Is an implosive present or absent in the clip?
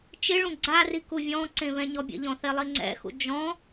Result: absent